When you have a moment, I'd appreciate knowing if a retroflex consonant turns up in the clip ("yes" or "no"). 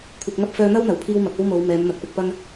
no